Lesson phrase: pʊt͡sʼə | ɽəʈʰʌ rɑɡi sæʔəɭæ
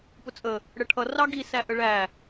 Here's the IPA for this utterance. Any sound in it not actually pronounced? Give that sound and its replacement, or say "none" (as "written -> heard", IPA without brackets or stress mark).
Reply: none